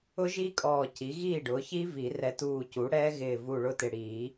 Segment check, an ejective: present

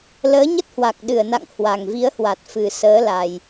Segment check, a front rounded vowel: absent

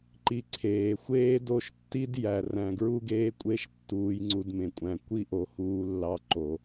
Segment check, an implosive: absent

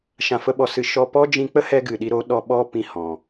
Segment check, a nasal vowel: present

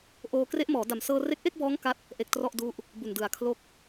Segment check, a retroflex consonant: absent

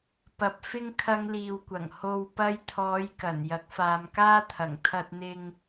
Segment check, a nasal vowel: absent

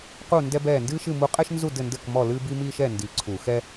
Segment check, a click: present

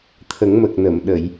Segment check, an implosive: present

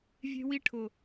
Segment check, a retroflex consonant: present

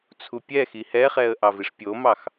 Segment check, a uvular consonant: present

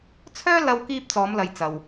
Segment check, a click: absent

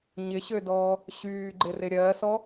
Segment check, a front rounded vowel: present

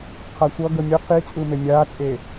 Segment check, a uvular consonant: present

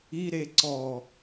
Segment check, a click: present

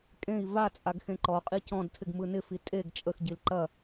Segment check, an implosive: absent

